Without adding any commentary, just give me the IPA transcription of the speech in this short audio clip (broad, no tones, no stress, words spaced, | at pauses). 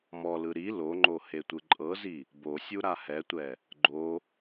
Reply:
mɔlɯ ɾi loŋ͡ǃo hetʷɯǃʼɤzi | bosʲu ɾahɛtʷɛ | ɡ͡ǃo